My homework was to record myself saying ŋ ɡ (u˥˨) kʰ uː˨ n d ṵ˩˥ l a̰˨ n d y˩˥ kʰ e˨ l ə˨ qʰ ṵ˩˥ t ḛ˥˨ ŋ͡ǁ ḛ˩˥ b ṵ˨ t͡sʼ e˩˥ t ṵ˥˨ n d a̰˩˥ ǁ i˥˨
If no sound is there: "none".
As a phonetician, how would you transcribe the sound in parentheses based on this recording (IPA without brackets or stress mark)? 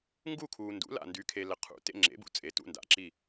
u˥˨